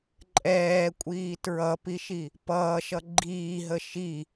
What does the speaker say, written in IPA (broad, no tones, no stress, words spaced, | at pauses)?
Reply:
ǃʼɛːkʷʼiː tɹʌpiʃi | pʌːʃʌ ɡ͡ǃiːɦə ʃi